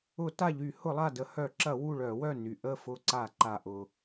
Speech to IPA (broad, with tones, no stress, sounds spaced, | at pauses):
ʊ˧˩˧ t a˧˩ ʎ y˧˩˧ h ʊ˧˩˧ lˠ a˧˩ d ə˧˩˧ h œ˧˩˧ ǁ ɐ˧˩˧ w u˧˩ ɭ œ˧˩˧ w œ˧˩ n y˩ ʔ ə˧˩ f ʊ˧˩ ǀ a˧˩˧ ǃ a˩ ʔ ʊ˩